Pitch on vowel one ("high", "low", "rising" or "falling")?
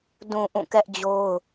low